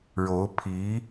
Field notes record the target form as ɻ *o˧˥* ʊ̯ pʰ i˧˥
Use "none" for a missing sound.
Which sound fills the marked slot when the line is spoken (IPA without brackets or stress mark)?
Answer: o˧˥